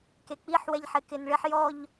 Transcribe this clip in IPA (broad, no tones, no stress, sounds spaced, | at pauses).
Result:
k e k͡p i ħ w ɛ ʎ ħ ɪ k ɪ n ɭ ɪ ħ j ɔ ʎ